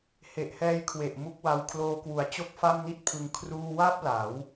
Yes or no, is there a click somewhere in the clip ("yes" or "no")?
no